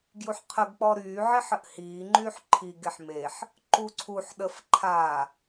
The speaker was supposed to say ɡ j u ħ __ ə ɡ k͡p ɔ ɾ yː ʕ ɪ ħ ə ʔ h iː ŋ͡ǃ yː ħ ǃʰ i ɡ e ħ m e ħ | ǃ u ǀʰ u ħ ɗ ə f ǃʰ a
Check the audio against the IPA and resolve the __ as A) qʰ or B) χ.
A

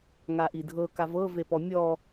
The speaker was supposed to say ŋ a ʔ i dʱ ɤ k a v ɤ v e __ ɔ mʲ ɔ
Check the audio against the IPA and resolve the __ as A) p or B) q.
A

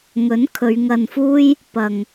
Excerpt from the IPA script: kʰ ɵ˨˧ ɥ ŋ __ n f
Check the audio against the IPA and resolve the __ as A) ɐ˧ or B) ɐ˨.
A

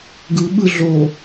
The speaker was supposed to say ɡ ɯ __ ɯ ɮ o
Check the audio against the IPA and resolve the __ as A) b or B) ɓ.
B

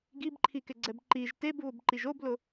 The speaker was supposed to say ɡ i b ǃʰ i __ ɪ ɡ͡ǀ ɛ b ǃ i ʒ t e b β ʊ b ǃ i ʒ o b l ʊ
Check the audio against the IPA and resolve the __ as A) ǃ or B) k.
B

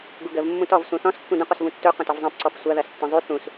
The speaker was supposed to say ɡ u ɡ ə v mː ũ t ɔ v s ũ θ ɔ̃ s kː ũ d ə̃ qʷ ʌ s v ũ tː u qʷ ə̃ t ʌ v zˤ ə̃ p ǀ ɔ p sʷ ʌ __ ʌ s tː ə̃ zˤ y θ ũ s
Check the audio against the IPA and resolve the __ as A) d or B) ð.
B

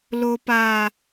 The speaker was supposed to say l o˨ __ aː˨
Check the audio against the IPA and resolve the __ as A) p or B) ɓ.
A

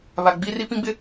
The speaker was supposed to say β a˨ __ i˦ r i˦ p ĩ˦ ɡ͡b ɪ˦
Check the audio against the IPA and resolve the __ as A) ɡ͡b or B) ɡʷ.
A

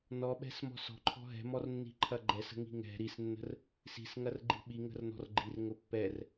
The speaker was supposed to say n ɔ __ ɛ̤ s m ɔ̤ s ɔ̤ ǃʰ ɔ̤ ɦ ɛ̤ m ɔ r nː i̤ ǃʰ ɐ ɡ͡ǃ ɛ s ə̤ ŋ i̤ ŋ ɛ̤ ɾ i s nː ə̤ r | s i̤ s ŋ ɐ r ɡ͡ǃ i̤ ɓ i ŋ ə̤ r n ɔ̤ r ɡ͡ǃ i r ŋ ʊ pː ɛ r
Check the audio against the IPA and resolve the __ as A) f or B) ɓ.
B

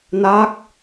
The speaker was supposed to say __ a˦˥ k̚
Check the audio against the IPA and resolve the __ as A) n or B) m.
A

